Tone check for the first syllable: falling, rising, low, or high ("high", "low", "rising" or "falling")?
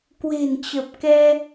low